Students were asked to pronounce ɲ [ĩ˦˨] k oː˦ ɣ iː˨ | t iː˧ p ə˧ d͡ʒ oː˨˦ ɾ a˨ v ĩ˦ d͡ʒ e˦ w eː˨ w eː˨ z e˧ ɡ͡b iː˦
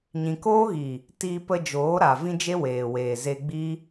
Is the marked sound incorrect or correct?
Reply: incorrect